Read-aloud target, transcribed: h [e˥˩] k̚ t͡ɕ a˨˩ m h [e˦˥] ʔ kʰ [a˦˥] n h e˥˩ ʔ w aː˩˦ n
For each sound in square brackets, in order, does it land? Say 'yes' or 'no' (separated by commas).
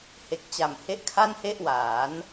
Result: no, yes, no